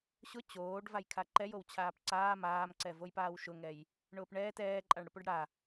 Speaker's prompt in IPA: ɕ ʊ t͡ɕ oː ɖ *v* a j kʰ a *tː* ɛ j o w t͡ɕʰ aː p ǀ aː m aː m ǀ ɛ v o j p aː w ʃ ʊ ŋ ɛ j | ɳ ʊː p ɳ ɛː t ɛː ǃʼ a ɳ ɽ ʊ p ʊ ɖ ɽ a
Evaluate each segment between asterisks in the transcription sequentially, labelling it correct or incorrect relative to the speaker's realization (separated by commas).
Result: correct, incorrect